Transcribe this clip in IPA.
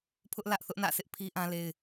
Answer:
pʰ ʊ˦ ʔ l ä˦ ʔ θ ʊ˦ ʔ n ä̰˦˨ s ɪ˦ ʔ pʰ i˦ ʔ ã˦ l e˦ ɪ̯

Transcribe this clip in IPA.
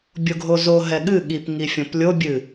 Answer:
bʲ o ɡʱ o z o ɦ ɛ ɠ ɨ ɠ i p ŋ i fʲ õ p lʲ o bʲ ɨ

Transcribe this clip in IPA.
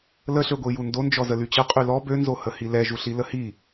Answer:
l ə ɬ ø ɡʷ i j u n d o n d͡ʒ ɔ z ə l y t͡ɕ ə qʼ y l ɔ b ø n z o h ə h i l ɛ ʒ u ɬ i l ə h i

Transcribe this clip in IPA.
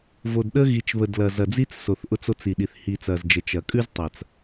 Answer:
v o˨ d ɗ ə˦ ɣ i˨ t͡ʃ β ə˨ d l ɐ˨ z ɐ˨ d͡z i˦ t͡s s o˨ θ ʔ ʊ˦ t͡s o˦ t͡s i˨ ɗ i˨ θ h i˨ t͡s ɐ˨ z d͡ʒ ə˨ t͡ʃ ɐ˨ kʼ ʉ˦ z tˤ ɐ˨ t͡s

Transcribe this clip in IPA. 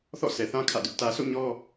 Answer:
θ ɔ̰˦˨ s ɛ˨ θ ã˦ kʰ ä̰˦˨ d ʊ˦ ʔ t ä˨ sʰ o̰˦˨ ɲ ɔ˦

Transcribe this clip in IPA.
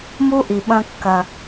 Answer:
m u˦ ʔ i˨ ɓ ɐ̃˦ kː ɐ˦

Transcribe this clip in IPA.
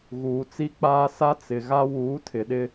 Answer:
ɣ uː˨ t͡s i˦ k͡p aː˦ s a˦ t͡s ɪ˨ ɣ a˦ w uː˨˦ tʰ ɪ˨ ɗ ɪ˦

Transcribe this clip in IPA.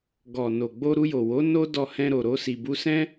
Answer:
ɡ ɔ˨ n o˨ ɡ͡b o˧ ɾ u˧ j o˨ w o˨˦ n o˦ d ɔ˧ h ɛ̃˧ ɾ o˨ ɾ o˧ s i˨ b u˧ s ɛ̃˦

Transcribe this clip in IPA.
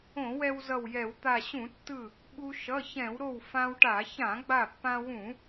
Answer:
õ˧˩˧ w ɛ˧ w z ʌ˧˩ w j ɛ˧˩˧ w t̪ a˧˩ ɕ ũ˧˩˧ tː ɯ˧˩ | ɓ u˧ ʃ ʌ˩˧˩ ç ɛ̃˧˩˧ w ɾ o˧˩ w f ã˧ w ʈ a˧˩˧ ç ã˧˩˧ ɡ͡b a˧˩ pː ã˧ w ũ˧˩˧

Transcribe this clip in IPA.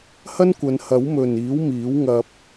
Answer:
h ɐ˥ n kʷ ɐ˨˧ n h ɐ˨˥ w m ɵ˨ n iː˨˥ w m iː˨˥ w ŋ ɐ˧ p̚

